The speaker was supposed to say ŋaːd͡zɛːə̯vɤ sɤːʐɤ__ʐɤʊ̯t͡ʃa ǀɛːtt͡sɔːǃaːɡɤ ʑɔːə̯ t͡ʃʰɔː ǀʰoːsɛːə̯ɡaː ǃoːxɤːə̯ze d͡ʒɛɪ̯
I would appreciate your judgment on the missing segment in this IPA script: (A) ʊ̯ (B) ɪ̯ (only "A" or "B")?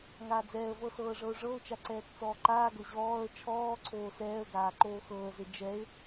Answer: A